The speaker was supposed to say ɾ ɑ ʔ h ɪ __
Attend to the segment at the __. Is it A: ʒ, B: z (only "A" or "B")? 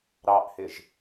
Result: A